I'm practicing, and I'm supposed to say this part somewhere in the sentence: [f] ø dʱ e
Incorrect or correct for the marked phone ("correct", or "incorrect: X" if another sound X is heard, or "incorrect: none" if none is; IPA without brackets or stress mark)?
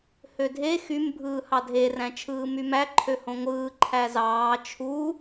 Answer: incorrect: h